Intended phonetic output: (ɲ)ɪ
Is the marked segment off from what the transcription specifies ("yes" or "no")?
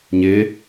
no